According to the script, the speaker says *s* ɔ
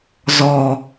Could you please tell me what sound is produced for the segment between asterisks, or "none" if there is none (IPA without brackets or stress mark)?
z